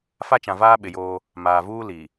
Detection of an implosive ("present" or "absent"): present